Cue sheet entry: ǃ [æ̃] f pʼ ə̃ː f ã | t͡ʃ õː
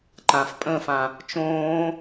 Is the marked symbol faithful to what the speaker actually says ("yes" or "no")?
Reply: no